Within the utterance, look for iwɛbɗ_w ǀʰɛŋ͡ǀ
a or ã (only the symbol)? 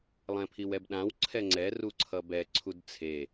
ã